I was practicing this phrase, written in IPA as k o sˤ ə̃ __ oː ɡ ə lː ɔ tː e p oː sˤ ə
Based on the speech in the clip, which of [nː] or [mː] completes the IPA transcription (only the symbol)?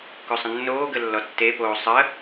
nː